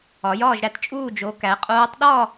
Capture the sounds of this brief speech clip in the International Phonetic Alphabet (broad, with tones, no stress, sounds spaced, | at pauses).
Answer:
ɒ˨˦ j ɒː˥˧ ʒ ɾ æ˥˩ t t͡ʃʼ uː˥˧ d͡ʒ o˨˦ k æ˨˦ qʼ oː˦˥ tˤ ɗ ɒ˥˧